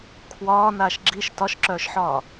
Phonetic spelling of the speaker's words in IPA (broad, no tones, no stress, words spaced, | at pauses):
kʰwɒːnaːʃ ɡ͡ǁiʃ tɒʃǁœːʃħɒː